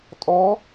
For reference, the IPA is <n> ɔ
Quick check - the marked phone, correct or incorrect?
incorrect